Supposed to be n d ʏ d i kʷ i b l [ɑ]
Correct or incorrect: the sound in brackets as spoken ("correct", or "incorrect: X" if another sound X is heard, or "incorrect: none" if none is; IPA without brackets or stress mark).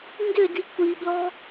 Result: incorrect: ɔ